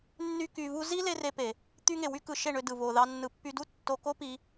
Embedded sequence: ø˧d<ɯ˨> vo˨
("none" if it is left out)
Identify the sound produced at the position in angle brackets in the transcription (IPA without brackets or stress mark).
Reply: ɯ˨